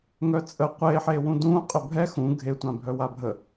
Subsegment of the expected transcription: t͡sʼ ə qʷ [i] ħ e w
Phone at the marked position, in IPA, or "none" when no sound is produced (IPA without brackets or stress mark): e